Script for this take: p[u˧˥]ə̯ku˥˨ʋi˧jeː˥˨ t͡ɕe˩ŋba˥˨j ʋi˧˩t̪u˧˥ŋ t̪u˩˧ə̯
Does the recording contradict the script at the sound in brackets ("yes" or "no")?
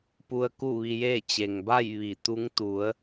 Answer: no